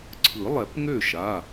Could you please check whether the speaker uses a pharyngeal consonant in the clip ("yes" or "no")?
no